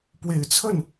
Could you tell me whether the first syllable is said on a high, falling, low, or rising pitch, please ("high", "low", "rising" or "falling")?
low